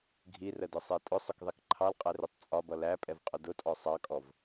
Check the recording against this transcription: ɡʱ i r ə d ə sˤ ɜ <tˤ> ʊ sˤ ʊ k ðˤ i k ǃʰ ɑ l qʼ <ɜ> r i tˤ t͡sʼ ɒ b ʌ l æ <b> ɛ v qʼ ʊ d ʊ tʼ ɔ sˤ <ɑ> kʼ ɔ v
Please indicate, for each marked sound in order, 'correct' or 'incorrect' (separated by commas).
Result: incorrect, incorrect, incorrect, correct